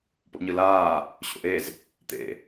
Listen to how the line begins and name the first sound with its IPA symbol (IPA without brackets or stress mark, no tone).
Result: p